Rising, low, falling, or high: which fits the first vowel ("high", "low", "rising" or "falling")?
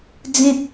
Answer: low